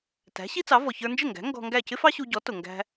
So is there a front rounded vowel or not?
no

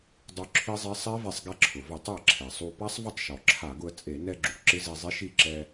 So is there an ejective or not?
yes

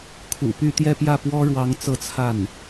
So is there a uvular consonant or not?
no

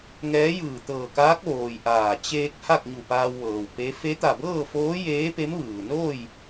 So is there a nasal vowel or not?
no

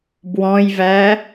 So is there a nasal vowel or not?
yes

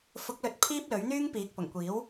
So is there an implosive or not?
no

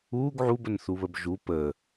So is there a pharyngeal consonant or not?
yes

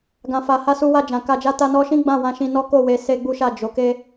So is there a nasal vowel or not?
yes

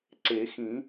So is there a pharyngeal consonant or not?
no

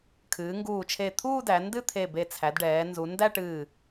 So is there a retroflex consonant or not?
yes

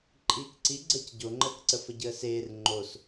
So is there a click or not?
yes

